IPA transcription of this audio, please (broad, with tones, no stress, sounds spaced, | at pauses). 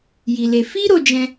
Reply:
j i˧ l e˧ f i˦ ɾ o˧ d͡ʒ ɛ̃˧